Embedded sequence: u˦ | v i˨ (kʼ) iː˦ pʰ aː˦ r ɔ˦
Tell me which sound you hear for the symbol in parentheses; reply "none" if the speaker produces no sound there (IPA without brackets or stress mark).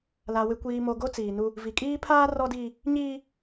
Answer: kʼ